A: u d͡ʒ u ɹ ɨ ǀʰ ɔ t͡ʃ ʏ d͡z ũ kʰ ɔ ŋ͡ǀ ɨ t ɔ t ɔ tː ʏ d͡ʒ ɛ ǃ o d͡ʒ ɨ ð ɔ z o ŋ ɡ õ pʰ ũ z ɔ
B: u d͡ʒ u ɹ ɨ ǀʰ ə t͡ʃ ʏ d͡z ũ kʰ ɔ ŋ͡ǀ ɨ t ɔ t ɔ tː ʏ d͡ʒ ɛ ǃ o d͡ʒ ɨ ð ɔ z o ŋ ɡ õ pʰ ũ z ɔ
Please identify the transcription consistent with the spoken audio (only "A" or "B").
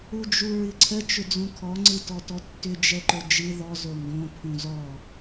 B